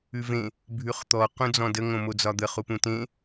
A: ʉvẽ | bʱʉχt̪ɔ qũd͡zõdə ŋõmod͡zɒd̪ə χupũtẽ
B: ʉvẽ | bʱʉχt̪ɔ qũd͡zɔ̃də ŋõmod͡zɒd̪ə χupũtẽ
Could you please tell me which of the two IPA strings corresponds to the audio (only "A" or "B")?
B